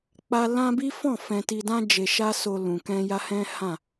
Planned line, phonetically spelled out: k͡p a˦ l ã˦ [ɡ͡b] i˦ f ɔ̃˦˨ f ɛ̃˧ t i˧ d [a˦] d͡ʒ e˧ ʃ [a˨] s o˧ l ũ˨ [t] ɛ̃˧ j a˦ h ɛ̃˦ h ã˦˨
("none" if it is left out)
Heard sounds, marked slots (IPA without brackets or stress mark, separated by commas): b, ã˦, a˦, k